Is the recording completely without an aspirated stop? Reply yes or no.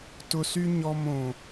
yes